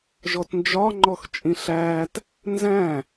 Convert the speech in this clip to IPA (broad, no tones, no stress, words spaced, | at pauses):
ʒɔtnd͡ʒɒ ŋ͡ǃɔxt͡ʃʼĩɬæːt | nzæ̃